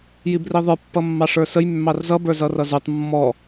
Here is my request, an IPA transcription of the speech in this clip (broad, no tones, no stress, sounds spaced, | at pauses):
j i b r i ðˤ ə˞ pː ʌ mː ɑ ʂ ə˞ s ə j mː ɑ r z ʌ b ə˞ z ʌ r ʌ z u tˤ mː ɔ